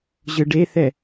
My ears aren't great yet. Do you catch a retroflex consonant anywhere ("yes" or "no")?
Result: yes